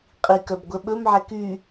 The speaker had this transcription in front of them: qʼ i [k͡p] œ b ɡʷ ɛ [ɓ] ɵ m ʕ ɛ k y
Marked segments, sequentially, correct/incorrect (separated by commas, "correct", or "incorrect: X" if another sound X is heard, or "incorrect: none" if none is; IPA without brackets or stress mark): incorrect: k, correct